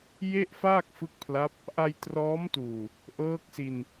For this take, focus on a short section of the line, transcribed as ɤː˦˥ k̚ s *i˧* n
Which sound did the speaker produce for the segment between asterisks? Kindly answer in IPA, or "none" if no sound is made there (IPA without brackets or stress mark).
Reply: i˧